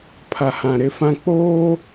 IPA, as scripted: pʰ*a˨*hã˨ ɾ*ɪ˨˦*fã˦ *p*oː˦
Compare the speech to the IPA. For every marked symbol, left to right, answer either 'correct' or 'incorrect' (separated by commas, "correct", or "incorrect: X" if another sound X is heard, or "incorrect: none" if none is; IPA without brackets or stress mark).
correct, correct, incorrect: k͡p